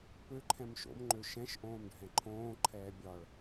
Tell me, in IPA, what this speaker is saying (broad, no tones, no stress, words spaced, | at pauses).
pøǃʰɛ̃m ʃo̰mŋ͡ǃø ʃɛ̃ʃʔõːmɖʱɛ̃ ǃʰõːǃʰɛː bʲɒɭ